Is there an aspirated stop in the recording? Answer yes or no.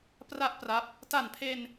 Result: yes